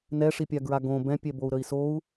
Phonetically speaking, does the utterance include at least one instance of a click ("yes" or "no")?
no